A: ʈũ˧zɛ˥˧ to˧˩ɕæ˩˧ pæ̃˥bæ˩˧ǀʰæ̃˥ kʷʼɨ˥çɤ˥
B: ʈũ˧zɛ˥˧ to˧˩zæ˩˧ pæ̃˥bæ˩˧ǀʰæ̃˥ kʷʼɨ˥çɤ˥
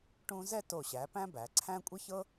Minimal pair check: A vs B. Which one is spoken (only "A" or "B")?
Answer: A